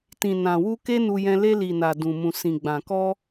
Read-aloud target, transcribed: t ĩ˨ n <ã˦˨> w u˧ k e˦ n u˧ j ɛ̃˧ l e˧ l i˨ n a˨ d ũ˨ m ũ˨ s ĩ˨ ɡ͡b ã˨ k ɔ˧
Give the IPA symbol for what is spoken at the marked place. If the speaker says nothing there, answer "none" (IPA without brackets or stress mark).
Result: ã˨